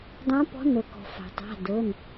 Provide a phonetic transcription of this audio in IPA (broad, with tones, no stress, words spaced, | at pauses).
dˤã˨˦pɔ̤˨˦ nɤ˩kɔ̤˩ fa̤˩tˤa̤˩˧˩ dɤ˩˧˩n